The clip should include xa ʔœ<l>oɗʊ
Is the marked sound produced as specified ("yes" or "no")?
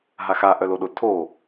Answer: yes